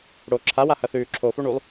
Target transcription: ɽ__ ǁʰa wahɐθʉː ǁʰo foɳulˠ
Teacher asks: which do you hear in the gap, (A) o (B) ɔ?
A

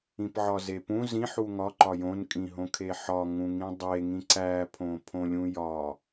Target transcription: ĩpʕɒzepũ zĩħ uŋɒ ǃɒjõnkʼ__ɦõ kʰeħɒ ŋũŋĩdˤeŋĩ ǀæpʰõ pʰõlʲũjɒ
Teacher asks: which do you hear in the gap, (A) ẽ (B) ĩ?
B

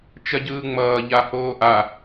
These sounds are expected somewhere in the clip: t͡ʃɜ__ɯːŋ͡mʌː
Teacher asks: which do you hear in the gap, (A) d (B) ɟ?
B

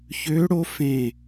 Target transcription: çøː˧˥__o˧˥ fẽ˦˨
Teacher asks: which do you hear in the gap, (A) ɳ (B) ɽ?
B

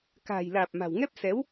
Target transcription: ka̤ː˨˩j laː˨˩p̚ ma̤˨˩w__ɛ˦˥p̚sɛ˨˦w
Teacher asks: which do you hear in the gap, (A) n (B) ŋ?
B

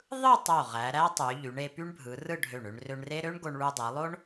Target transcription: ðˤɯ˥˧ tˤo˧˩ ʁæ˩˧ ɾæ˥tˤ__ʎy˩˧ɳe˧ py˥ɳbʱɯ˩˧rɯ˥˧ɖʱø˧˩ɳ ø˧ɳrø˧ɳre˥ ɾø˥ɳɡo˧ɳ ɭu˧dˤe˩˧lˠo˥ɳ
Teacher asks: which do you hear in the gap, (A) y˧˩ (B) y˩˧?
B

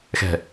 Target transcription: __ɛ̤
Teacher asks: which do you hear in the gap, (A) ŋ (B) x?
B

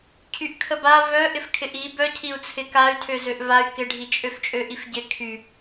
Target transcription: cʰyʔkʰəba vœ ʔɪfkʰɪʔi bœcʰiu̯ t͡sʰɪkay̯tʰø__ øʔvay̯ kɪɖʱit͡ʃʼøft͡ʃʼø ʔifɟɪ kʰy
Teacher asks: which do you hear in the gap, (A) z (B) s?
A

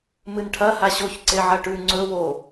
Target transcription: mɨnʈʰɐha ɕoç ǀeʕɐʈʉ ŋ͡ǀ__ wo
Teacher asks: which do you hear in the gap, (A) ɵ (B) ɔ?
A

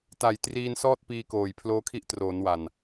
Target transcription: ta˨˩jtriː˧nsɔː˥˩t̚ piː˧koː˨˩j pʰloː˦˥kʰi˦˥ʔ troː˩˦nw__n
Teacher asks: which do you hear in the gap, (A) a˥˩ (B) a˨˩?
B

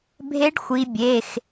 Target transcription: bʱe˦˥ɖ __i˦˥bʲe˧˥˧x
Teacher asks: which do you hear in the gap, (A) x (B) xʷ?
B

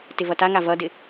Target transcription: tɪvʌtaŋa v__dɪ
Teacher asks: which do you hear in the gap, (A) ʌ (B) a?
A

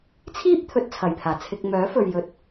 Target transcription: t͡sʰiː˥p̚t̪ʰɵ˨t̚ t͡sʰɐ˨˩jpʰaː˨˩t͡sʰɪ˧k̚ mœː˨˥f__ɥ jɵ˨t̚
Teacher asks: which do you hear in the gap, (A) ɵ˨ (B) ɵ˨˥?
A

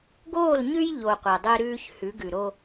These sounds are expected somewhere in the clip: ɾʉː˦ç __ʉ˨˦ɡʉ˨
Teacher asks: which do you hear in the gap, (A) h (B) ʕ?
A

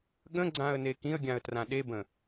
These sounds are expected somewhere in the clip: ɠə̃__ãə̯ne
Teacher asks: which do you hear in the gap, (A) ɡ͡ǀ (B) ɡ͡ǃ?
A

